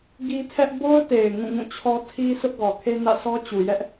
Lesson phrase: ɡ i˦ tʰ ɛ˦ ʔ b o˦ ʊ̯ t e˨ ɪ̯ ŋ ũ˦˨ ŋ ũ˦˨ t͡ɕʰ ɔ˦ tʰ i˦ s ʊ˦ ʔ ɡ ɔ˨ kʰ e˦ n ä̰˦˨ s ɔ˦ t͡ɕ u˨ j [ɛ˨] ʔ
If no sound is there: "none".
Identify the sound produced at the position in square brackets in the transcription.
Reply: ɛ˦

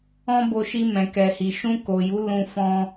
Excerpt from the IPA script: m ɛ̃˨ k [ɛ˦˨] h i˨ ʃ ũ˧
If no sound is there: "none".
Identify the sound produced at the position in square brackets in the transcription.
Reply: ɛ˨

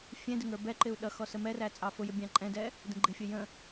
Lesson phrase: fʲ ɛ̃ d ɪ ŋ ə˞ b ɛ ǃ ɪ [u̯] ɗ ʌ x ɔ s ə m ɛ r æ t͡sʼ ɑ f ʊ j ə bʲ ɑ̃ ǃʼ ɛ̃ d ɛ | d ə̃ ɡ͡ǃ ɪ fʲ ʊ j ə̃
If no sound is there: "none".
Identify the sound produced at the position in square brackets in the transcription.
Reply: u̯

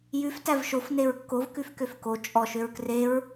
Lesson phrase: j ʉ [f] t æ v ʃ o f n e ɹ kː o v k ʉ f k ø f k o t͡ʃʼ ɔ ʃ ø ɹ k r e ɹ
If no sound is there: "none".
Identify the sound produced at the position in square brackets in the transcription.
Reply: f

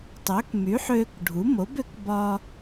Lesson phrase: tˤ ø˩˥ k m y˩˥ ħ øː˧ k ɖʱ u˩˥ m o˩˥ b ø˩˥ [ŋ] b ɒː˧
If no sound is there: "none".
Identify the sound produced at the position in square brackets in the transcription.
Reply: k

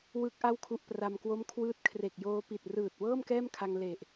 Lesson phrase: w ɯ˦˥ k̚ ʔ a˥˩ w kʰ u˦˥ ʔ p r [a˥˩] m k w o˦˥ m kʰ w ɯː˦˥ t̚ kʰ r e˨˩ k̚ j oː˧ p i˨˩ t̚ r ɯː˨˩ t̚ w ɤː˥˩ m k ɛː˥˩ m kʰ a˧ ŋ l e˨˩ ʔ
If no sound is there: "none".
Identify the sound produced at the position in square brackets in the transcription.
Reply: a˧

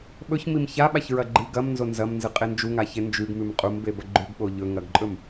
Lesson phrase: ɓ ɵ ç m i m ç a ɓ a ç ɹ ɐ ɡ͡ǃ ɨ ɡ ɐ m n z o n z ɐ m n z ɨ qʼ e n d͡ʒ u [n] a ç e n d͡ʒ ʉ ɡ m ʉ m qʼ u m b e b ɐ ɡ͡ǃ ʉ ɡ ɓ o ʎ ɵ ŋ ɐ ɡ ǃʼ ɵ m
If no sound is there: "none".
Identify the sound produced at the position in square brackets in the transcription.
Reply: ŋ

